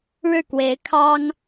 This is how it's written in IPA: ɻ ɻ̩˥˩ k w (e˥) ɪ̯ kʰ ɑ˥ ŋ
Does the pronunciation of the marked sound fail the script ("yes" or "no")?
yes